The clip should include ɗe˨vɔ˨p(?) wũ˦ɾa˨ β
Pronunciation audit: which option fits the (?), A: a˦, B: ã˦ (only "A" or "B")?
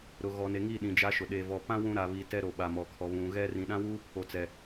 B